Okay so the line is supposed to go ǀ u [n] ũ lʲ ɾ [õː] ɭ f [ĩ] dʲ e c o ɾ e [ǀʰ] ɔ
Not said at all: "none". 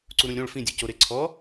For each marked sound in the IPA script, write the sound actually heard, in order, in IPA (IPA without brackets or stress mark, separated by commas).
ɾ, õ, ĩ, ǀʰ